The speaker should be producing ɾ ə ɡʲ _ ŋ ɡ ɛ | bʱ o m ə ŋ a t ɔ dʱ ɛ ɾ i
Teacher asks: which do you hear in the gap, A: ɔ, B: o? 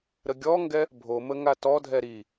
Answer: A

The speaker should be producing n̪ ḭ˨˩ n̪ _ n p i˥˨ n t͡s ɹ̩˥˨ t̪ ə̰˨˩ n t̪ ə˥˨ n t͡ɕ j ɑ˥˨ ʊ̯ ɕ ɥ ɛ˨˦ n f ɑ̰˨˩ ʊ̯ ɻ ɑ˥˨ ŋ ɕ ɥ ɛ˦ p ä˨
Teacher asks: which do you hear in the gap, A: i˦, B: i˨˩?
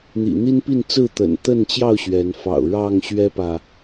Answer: A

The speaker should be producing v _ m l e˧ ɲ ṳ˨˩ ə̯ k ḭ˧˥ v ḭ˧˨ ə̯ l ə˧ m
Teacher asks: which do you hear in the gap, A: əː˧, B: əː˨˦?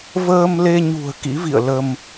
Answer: A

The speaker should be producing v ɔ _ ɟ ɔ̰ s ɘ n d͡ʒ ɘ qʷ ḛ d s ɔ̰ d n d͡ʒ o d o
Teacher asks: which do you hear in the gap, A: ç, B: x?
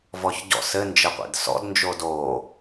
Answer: A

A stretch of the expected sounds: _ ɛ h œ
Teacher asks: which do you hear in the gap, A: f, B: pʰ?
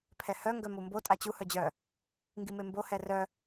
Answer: B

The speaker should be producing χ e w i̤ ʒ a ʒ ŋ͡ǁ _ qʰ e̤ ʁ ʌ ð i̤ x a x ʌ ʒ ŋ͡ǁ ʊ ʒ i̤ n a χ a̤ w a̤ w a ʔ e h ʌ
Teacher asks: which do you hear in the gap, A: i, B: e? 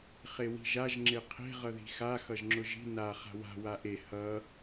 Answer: B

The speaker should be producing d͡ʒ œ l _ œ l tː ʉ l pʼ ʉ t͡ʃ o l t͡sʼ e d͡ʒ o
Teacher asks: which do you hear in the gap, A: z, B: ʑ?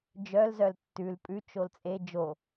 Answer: A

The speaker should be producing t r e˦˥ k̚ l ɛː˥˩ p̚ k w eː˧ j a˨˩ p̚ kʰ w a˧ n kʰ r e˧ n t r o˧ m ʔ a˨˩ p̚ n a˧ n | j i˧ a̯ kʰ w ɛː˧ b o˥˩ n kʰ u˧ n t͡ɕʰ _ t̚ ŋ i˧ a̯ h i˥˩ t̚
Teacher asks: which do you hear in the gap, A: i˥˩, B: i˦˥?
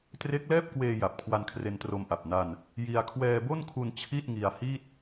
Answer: A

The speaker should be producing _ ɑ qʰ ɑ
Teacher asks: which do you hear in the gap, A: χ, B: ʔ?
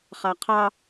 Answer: A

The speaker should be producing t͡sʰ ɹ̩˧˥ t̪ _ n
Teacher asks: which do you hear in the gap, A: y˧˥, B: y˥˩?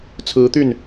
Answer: B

